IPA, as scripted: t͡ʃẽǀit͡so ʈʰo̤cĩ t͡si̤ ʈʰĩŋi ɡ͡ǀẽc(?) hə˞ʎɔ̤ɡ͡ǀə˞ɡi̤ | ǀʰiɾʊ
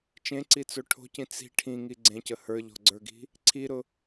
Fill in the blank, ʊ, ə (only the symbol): ə